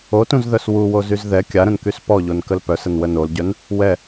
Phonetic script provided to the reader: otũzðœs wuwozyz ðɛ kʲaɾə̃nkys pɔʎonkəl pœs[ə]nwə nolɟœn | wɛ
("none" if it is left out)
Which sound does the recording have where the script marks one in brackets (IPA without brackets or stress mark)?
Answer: ə